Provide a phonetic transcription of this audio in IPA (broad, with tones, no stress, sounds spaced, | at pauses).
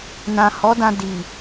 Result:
n ã˨ h ɔ˨˦ d ã˧ d i˨